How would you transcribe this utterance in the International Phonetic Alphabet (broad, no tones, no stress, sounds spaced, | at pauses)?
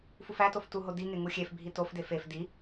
f u f æ t o f t u ɦ o d i ŋ e ŋ u xʲ e f bʱ i t o f d e f e f d i